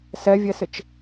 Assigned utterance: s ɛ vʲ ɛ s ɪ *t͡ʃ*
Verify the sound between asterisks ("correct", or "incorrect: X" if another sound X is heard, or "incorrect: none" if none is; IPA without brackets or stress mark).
correct